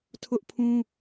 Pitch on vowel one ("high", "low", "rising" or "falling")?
high